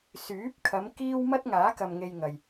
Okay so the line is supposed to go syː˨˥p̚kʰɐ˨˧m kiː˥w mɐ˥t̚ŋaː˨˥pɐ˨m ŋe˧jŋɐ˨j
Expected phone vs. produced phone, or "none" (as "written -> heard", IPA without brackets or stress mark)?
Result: p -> k